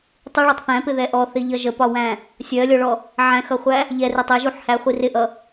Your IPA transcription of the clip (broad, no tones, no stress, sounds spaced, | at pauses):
tˤ u ɭ ɒ tˤ θ æ̃ p ɪ ð ɛ ʔ ɔ θ ɪ ʎ ʌ ʒ ə p ɒ w æ̃ | sʲ ɜ lʲ ɔ ɭ ɔ | ʕ æ̃ x ʌ χʷ æ | ʎ ɛ r ɪ tˤ ɛ ʒ u ħ h æ χʷ i r ɪ ʔ ʌ